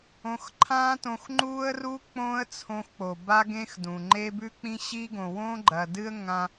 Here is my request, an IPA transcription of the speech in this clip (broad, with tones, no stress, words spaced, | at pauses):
õ˧xǃʰãː˦tõ˧x ŋ͡ǃuː˦ə̯ruː˦ k͡põː˦ə̯t͡sʰõ˧xk͡po˨ ba˦ɡẽ˦xdũ˨ŋ͡ǃe˦ bʉ˦k͡pĩ˦ɕi˦ ɡõ˨wõ˦ɡ͡ǃɐ˨ dɨ˦ə̯ŋã˧